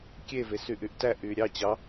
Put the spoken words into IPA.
kʲ e v e s y ʔ y ʔ t æ ʔ y ɾʲ ɑ t͡ɕ ɑ

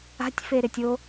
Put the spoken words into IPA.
a̤ tʲ f e ɾ ɪ tʲ o

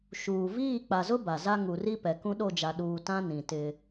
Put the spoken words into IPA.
ʃ uː˨ v iː˦˨ k͡p a˨ z ʊ˦ b a˨ z a˦ ŋ u˨ r i˦ p ɛ˨ k ũ˦ ɗ o˦˨ d͡ʒ a˨ ɗ uː˨ t ã˦ n ĩ˨ t ɪ˦

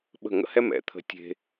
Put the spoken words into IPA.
ɓ ə̤˥˩ ŋ ə̰˥ h ɛ˥ m ɛ̰˩˥ t̪ʰ ə̤˧ tʲ e̤˧

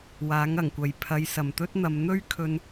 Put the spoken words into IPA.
w aː˨˥ ŋ ɐ˨˩ ŋ kʷ ɐ˨ j pʰ ɐ˨˧ j s ɐ˨˩ m t̪ ɵ˥ t̚ n̪ ɐ˨˧ m n̪ ɵ˥ ɥ kʰ ɵ˧ n

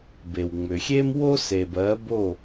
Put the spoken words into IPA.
b e˩ w ŋ͡m ʏ˩ xʲ e˥ m w o˥ s e˩ b ɜ˩˥ b o˥˩

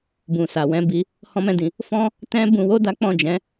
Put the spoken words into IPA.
b ũ˨ s a˨ w ɛ̃˨˦ b i˧ | h ɔ̃˦ m ɛ̃˦˨ d ĩ˧ | f ɔ̃˦ | t ɛ̃˦ b ũ˧ w o˦ d a˦ k͡p ɔ̃˦˨ d͡ʒ ɛ̃˨˦

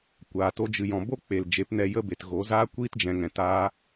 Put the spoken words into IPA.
kʷ aː˨ t o˦ d͡ʒ ɨ˧ j ɔ̃˨ b o˦ k͡p e˨ l d͡ʒ e˨˦ p n ɛ˧ j ə˦ b e˨ t ɣ o˨˦ z aː˦ kʷ iː˦ t d͡ʒ ɛ̃˨ ŋ ɛ̃˨ t aː˦

